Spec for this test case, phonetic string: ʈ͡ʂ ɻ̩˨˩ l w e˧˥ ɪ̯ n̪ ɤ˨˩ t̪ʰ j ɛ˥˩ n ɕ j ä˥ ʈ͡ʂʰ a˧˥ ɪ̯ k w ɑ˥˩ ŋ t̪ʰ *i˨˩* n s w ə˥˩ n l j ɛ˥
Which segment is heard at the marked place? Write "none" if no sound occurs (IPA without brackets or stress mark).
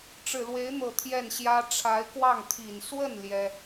i˨˩